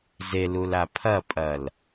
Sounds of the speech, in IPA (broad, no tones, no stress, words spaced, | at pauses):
zelula pʰɐpʼɐl